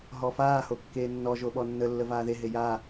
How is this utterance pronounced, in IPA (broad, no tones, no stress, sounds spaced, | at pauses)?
ɦ ɔ f aː h o kː eː nː ɔ ʒ o ɓ ɔ nː ə lː ə v aː ð e ɦ e j a